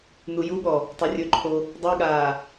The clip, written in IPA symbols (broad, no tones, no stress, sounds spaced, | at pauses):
n u j u ɠ ɔ | tˤ u rʲ ɵ ǃʰ o | dˤ i ɠ aː